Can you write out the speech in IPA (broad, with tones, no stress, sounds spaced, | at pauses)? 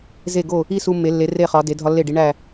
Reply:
z e˧˩ ɡ o˧˩ | i˥˧ s u˧ mː e˩˧ lː e˩˧ r e˧˩ χ ɒ˩˧ d e˩˧ dʱ ɒ˧ lː e˧˩ ɖ i˩˧ ɳ æ˧˩